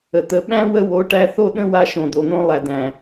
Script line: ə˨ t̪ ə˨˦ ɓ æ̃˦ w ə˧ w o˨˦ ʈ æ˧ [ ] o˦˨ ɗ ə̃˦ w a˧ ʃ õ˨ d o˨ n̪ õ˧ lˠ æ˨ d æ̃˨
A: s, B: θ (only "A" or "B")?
B